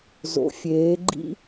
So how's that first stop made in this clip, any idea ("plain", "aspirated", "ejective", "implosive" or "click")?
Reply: click